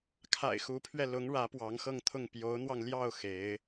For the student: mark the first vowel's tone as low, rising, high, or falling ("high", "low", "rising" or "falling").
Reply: low